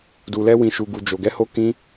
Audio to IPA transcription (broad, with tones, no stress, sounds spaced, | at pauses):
d u˨ l ɛ˧ w ĩ˨ ʃ u˨ ɡ u˨ d͡ʒ o˨ ɡ ɛ˨˦ h o˧ k ĩ˧